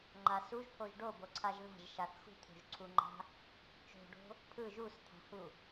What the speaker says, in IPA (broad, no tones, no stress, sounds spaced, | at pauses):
ŋ͡ǃ a s u ʒ pʰ o ʒ ɖ o b o ǀʰ a ʒ ð a̤ ʒ ʃ a θ x ṳ t̪ʰ o̤ ʒ ǀʰ u ŋ͡ǃ a̤ | t͡ʃ o̤ ɖ o̤ | pʰ ɯ ʒ u s t̪ʰ a̤ h u